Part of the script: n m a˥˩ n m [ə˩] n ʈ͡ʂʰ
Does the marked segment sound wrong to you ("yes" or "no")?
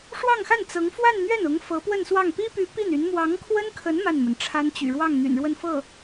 no